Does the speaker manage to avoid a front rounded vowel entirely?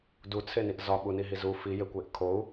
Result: yes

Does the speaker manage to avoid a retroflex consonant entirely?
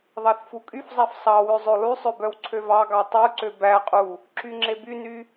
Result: yes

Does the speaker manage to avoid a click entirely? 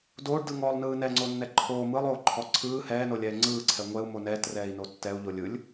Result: no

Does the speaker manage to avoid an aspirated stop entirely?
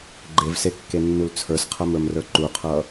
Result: no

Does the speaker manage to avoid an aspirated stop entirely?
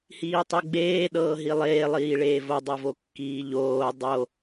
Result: yes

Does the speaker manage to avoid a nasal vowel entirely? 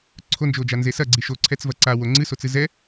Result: yes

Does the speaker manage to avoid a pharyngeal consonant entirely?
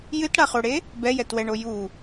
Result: yes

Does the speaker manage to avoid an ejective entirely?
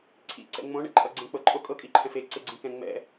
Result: no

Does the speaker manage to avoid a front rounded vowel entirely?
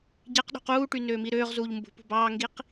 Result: no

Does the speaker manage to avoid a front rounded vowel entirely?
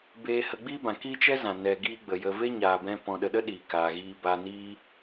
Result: yes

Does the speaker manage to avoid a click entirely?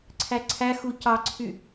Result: no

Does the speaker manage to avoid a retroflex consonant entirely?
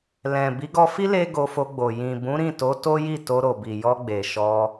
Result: yes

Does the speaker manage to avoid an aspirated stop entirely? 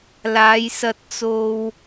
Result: yes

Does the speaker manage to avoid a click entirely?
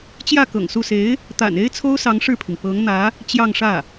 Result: yes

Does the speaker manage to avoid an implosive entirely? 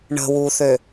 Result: yes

